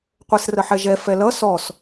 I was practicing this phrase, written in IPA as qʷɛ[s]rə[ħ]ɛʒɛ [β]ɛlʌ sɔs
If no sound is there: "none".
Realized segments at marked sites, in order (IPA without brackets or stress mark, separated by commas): s, ħ, f